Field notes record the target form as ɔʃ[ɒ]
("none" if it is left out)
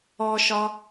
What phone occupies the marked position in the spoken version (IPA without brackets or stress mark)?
ɒ